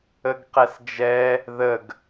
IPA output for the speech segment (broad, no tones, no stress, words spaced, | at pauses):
əɡqɛsd͡ʒɛ | ðəɡ